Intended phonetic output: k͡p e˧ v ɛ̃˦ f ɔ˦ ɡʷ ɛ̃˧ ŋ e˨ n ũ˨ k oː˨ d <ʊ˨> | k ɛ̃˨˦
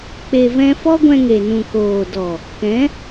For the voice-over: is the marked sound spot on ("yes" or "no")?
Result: no